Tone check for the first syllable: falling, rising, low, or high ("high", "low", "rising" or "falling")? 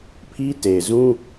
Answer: high